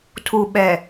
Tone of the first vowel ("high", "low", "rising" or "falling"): low